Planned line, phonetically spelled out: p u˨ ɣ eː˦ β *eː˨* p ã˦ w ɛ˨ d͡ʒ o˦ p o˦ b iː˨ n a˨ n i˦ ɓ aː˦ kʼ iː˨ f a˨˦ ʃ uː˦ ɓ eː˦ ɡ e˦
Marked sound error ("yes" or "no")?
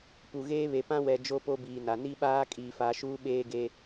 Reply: yes